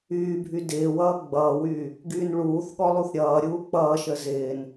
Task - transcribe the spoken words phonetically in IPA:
yː bʱ y d ɪː w ʌː ɡ͡b ʌː w yː | ɡ yː n ɭ uː θ ɠ ɔ lˠ u θ ɾʲ ʌː ɾʲ uː k͡p ʌː ʃ ə z ɪː n

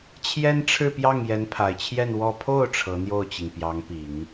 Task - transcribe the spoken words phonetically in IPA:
t͡ɕʰ j ɛ˥ n ʈ͡ʂʰ ɻ̩˥˧ p j ɑ˥˩ ŋ j ɛ˧˥ n pʰ a˨˩ ɪ̯ t͡ɕʰ j ɛ˥˧ n w ɔ˥˧ pʰ o˥˩ ʊ̯ ʈ͡ʂʰ ɤ˧˥ n̪ j o˥˩ ʊ̯ t͡ɕ i˩ ŋ p j ɑ˧˥ ŋ p i˨˩˦ ŋ

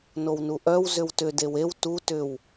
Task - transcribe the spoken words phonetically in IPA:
n o w n u ʔ œ w z ʏ w t ʏ d e w e w t u t ʏ w

